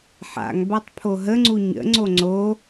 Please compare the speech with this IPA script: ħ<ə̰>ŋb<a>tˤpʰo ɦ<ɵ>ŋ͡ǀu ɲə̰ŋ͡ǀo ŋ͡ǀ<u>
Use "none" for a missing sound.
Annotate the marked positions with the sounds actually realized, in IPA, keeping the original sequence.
a̰, a, ə, o

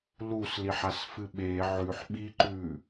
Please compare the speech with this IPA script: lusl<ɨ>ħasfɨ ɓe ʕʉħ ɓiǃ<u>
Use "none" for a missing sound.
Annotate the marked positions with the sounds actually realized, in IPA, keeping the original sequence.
i, ʉ

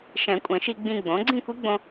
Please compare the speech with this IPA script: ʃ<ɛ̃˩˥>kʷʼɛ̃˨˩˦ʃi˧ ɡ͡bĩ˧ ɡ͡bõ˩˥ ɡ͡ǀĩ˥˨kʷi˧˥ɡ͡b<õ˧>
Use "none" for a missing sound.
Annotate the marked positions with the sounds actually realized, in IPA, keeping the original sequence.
ɛ̃˨˩˦, õ˧

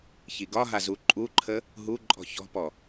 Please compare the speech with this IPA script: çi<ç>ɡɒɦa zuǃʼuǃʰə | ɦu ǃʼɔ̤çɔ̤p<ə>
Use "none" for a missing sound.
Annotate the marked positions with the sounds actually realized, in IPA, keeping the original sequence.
none, ɔ

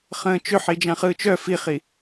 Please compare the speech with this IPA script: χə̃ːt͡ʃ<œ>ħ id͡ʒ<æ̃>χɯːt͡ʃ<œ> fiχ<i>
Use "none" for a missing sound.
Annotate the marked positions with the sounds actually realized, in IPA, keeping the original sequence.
ø, ã, œ, i

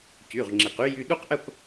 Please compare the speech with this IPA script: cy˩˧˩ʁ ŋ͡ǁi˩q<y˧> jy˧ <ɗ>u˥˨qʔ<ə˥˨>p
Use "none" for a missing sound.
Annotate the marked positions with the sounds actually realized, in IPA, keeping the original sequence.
y˧, ɗ, ə˥˨

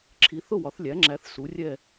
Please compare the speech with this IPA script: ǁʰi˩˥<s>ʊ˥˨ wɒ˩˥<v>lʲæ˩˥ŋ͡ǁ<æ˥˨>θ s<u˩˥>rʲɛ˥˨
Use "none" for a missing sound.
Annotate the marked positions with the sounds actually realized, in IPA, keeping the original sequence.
θ, θ, æ˩˥, u˩˥

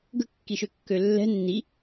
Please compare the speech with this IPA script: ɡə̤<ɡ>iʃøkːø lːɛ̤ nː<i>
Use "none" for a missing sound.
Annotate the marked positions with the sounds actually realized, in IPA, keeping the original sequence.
kː, i

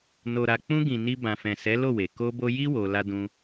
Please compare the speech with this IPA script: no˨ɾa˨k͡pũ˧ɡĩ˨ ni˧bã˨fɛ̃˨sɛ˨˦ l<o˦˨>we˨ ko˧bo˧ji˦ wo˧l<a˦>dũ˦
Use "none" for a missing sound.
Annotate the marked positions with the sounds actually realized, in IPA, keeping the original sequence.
o˦˨, a˦

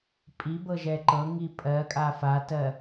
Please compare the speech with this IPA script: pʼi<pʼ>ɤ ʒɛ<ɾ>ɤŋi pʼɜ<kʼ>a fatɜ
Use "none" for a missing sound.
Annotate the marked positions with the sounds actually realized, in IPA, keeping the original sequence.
b, ǃ, kʼ

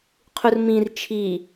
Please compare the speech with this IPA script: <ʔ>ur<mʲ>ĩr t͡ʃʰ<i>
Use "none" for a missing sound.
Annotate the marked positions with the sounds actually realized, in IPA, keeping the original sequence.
qʰ, m, i

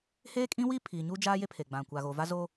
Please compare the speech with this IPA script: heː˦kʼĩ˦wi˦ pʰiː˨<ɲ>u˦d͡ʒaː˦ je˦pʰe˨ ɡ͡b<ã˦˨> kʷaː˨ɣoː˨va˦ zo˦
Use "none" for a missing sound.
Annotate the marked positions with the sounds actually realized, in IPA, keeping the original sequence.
ɲ, ã˨

